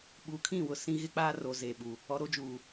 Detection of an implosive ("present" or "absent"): present